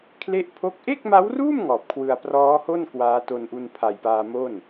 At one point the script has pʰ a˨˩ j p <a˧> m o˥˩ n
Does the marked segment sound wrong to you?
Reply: yes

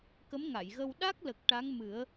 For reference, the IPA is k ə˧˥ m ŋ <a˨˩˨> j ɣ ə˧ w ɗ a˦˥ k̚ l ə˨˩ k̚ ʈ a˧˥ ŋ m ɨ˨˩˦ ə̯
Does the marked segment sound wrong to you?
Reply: no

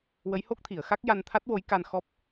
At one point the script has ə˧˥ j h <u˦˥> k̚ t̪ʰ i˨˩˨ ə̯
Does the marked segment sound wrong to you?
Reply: yes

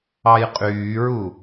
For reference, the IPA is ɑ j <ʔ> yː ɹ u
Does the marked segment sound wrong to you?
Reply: yes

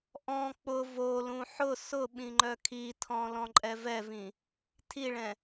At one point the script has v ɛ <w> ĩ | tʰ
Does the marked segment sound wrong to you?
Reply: yes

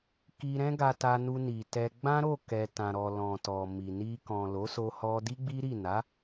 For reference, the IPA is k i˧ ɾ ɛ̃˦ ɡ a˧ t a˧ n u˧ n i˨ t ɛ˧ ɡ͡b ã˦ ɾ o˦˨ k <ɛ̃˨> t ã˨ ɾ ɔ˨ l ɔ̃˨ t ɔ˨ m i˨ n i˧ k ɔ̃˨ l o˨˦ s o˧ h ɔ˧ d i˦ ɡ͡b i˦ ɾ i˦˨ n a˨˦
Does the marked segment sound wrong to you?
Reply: yes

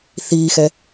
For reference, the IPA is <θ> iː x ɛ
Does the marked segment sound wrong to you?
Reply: no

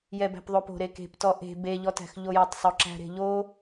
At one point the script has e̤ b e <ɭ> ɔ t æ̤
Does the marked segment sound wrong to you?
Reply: yes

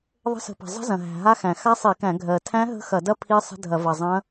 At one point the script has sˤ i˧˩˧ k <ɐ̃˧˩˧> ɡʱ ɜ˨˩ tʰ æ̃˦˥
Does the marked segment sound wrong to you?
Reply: yes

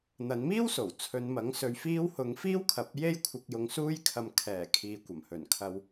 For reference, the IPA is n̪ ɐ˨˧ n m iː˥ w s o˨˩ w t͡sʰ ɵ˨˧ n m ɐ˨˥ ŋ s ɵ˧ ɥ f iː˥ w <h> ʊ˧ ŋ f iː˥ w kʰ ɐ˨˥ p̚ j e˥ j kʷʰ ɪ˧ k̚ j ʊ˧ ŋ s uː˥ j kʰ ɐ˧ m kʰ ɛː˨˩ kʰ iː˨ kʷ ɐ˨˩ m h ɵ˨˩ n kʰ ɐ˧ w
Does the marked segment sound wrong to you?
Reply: no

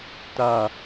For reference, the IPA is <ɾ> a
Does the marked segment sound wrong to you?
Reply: yes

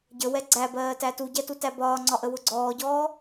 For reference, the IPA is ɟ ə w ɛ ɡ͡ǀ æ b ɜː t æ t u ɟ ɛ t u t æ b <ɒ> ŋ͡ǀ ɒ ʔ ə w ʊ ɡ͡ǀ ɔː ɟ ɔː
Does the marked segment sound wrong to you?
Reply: yes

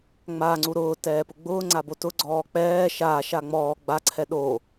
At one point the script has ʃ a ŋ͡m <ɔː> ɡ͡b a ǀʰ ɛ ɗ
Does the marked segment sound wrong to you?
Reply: no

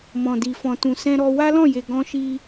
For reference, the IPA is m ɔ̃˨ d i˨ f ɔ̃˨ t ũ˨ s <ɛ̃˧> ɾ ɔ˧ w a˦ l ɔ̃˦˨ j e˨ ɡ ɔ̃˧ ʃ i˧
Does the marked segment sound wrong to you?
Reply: no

